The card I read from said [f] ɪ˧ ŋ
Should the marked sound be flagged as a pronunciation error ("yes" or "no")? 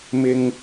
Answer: yes